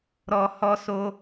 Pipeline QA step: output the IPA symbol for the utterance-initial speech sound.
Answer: ɾ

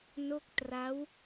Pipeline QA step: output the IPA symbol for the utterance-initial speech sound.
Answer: n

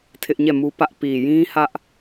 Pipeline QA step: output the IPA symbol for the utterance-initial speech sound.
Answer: tʰ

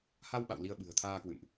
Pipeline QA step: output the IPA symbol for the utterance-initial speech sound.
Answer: h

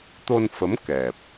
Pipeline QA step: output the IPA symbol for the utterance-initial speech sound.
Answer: t̪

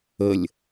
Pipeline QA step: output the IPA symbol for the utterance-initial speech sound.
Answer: ə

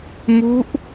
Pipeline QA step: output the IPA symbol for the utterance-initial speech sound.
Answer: m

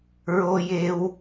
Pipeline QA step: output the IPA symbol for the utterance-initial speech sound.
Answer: ɹ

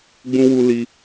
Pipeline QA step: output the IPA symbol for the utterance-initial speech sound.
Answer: ɡ͡b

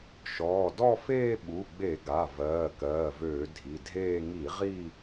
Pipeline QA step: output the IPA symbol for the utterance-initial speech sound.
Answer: ʃ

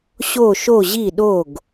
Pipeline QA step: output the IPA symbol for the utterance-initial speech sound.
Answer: ɕ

